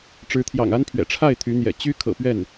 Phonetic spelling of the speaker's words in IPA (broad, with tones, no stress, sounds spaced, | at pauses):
ʈ͡ʂ ɻ̩˧˥ t̪ʰ j ɑ̰˨˩ ŋ a˥ n pʰ ɥ ɛ̰˨˩ ʈ͡ʂʰ a˥˩ ɪ̯ t̪ʰ y˧˥ n̪ j ɛ̰˨˩ t͡ɕ y˥ kʰ ɤ̰˨˩ p ɥ ɛ˥˩ n